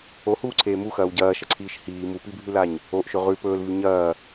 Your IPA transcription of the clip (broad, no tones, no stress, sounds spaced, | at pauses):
o h uː ǀʰ eː m u x ɐː w ɟ ɐː ʃ ɐ ǀʰ iː ʃ h iː m u p i bʱ ʉ l a ɲ | o ʔ ʃ ɵ ʁ ʉ p ɵː l v ʉ ɲ ɐː